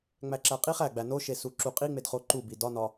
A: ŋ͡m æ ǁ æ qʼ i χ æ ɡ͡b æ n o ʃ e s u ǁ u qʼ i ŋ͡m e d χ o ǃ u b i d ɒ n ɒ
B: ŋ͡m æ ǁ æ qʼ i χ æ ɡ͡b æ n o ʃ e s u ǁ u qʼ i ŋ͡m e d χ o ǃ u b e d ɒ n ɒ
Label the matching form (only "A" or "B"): A